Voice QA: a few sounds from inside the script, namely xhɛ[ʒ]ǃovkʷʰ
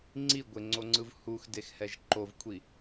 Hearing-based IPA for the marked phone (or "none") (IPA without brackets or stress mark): ʒ